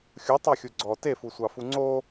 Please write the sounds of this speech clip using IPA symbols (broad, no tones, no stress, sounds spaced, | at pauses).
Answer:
xʲ u tˤ ɑ xʲ u ɡ͡ǀ ɔ t e f u sʷ ɑ f u ŋ͡ǀ o